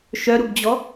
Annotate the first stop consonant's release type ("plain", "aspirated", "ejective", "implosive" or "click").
plain